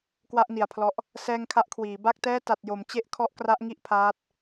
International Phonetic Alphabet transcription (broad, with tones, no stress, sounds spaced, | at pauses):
k w a˥˩ ʔ n i˨˩ a̯ pʰ l ɔ˦˥ ʔ | s ɛː˧ ŋ kʰ a˦˥ ʔ kʰ w iː˩˦ b a˥˩ k̚ t ɛː˥˩ t a˨˩ t̚ j o˩˦ m t͡ɕ e˥˩ ʔ kʰ ɔ˦˥ ʔ k r a˦˥ ʔ ŋ i˥˩ ʔ pʰ aː˦˥ t̚